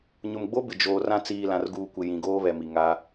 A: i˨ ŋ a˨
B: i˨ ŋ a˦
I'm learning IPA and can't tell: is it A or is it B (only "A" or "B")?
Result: B